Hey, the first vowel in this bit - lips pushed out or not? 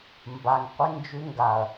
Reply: no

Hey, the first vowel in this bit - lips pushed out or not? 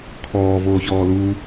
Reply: yes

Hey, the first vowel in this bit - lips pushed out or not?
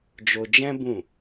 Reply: yes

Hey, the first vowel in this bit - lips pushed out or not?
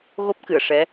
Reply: yes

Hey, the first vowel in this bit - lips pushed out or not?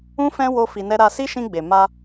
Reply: yes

